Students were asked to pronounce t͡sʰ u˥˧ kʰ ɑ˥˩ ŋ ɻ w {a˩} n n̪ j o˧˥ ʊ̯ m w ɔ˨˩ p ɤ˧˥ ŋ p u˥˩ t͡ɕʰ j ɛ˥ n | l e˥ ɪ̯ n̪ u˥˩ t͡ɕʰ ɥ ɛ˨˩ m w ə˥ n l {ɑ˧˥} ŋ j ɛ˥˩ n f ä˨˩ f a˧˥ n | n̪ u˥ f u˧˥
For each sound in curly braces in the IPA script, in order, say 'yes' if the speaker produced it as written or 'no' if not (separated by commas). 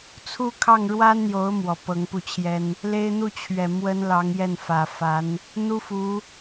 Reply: no, yes